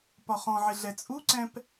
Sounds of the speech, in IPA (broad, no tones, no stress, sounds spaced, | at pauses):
p ɒ χ ɔ̃ ʕ ɪ ɮ ɛ t͡sʼ u ǀ ɛ̃ p